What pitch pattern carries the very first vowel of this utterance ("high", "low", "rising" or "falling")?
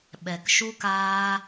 low